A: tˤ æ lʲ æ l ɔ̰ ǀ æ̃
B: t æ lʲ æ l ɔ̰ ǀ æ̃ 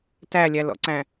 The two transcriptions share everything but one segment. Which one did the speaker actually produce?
B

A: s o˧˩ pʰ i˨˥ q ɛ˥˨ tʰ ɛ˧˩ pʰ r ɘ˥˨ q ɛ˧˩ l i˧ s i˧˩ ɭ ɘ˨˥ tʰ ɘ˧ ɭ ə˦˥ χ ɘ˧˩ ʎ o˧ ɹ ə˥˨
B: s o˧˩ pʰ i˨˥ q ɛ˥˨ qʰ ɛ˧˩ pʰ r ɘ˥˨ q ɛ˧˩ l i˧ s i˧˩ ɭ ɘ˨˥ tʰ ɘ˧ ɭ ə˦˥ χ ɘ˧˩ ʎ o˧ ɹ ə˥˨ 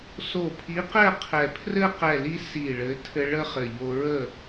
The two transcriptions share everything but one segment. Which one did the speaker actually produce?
B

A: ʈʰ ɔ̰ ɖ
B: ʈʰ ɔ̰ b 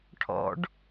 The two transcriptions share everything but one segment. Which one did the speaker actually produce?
A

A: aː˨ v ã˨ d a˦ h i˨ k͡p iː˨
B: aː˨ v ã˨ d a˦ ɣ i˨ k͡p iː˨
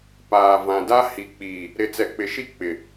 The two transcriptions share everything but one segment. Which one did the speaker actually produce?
A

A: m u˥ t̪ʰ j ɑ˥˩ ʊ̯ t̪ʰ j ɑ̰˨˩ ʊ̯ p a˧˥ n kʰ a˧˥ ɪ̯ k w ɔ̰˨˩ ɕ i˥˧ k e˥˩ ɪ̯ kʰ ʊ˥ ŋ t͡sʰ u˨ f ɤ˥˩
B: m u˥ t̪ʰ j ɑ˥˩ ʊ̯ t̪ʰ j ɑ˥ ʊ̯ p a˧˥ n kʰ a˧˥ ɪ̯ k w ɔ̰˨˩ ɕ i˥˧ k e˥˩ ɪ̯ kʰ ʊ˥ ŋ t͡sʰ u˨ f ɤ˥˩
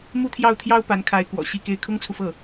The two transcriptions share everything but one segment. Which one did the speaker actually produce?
B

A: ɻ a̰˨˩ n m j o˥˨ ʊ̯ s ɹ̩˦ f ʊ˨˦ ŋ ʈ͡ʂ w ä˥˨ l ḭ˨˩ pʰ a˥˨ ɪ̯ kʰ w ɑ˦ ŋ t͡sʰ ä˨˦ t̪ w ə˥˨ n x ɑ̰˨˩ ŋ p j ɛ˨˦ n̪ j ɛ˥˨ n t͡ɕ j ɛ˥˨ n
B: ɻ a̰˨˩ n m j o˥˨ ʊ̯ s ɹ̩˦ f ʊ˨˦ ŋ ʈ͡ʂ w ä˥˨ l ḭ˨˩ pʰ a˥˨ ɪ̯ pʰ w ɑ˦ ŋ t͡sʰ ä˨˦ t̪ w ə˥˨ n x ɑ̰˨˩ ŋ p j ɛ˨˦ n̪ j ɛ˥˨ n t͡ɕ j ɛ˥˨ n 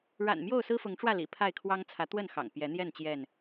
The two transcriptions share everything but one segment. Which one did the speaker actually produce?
A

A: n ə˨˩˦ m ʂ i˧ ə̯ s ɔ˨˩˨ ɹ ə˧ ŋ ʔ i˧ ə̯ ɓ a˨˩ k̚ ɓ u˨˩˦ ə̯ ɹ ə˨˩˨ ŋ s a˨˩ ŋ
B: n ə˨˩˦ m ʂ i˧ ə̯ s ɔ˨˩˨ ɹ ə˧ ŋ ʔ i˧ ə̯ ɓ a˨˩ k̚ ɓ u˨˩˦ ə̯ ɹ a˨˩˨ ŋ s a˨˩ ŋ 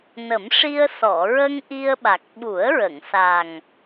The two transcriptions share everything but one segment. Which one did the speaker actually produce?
A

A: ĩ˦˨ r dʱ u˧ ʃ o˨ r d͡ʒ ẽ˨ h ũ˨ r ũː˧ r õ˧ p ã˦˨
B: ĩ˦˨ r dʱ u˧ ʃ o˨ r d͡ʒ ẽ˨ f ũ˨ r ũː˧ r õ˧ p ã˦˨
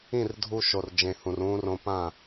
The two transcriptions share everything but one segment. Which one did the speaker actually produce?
A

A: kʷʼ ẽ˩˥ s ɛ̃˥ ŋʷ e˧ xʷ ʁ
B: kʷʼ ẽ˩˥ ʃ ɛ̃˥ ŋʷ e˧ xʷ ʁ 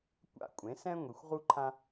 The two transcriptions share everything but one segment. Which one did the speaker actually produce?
A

